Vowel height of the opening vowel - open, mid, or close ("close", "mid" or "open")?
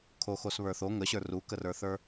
mid